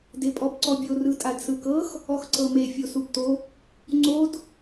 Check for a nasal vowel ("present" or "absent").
absent